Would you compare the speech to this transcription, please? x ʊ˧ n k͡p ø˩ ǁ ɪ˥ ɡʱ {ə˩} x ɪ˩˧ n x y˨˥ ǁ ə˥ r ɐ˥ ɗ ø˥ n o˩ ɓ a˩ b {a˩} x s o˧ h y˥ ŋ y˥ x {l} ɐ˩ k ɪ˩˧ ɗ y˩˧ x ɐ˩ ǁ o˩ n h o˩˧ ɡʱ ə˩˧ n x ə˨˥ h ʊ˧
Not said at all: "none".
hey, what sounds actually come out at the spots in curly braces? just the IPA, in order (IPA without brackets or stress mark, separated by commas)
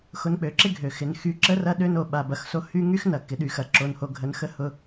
ø˩, ɐ˩, n